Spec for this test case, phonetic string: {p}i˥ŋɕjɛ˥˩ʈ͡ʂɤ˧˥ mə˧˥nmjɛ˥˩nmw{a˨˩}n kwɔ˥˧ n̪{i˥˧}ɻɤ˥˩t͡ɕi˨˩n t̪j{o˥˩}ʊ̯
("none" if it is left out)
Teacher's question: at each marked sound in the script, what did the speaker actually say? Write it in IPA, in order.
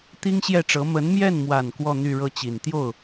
t̪, a˨˩, y˥˧, o˥˩

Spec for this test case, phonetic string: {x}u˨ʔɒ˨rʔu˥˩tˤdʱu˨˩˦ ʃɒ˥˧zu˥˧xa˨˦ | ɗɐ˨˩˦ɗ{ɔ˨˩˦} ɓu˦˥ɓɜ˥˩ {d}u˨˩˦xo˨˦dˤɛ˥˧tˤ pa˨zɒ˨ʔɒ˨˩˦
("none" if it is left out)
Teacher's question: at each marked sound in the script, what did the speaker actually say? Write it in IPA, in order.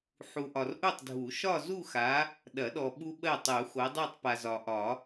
ħ, ɔ˨, tˤ

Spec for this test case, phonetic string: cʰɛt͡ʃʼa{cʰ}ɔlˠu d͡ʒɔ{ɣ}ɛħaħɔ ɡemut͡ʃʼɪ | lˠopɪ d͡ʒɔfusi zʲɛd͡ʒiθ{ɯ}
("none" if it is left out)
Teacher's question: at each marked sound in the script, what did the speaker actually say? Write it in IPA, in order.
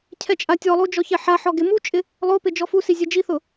tʲ, ç, ʊ

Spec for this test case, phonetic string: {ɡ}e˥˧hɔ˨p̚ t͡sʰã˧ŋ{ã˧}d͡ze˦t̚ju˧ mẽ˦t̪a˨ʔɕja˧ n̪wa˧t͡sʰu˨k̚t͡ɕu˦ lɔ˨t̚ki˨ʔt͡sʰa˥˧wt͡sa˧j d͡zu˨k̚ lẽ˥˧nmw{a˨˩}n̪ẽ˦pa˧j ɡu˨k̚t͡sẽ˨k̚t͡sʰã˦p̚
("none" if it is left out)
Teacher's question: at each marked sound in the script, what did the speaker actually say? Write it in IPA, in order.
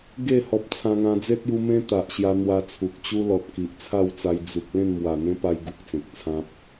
ɡ, ã˧, a˨˩

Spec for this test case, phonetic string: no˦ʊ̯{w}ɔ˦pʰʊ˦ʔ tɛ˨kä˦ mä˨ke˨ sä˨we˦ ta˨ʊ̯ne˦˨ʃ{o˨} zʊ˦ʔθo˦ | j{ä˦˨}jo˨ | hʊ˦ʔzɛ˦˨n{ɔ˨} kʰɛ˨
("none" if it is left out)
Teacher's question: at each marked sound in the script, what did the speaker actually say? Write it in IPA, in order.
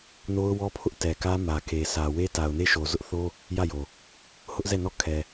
w, o˨, ä˦˨, ɔ˦˨

